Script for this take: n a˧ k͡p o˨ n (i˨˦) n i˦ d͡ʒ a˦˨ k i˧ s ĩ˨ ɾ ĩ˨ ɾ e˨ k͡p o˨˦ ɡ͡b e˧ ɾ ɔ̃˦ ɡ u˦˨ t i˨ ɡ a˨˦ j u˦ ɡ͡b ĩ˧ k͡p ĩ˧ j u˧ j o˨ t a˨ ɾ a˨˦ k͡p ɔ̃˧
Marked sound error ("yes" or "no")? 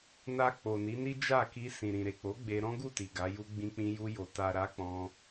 no